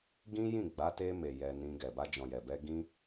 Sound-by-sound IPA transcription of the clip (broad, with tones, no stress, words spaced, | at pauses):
ɡĩ˦jĩ˦˨ɡ͡ba˨˦ te˧me˨ jɛ˧nĩ˧ɡɛ˨ ba˧d͡ʒɔ̃˨jɛ˨bɛ˧ ɡĩ˧